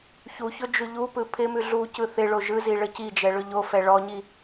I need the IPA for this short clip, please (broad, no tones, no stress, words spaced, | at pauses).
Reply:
çuçɵ d͡ʒʉʎupɯ pʰɪmʉ ɮu cɯθɪɭo ʒɯzi ɭəcid͡ʒɛ ɭɵʎofɛ ɭɔɲi